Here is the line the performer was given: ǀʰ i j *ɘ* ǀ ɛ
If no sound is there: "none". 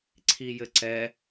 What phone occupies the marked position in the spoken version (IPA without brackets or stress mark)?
ɘ